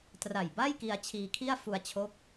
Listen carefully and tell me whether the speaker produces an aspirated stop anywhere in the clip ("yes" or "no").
yes